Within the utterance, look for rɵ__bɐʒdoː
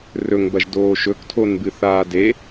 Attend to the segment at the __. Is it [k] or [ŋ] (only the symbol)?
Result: ŋ